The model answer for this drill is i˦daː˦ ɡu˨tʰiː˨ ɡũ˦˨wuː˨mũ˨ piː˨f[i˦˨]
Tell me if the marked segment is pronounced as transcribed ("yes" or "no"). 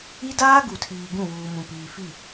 yes